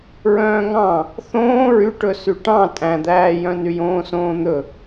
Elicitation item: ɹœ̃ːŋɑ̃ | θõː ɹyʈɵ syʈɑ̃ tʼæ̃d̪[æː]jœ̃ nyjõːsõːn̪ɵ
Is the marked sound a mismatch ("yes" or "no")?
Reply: no